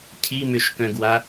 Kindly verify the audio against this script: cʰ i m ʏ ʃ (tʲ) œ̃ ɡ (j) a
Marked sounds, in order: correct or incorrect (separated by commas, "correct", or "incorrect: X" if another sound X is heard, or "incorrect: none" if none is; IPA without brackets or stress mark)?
incorrect: k, incorrect: w